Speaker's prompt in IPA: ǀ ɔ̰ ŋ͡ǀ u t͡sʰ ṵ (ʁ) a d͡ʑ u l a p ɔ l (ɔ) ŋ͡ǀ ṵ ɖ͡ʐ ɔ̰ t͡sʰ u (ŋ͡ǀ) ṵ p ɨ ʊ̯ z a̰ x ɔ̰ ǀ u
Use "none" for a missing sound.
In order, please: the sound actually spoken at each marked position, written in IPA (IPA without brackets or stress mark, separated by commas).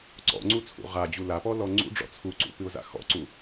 ʁ, ɔ, ǀ